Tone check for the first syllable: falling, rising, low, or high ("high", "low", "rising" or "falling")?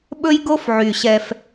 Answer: high